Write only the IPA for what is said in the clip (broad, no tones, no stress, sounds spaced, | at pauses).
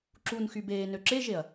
ǁ u n x y b eː n ø ǁ e ʒ e ɐ̯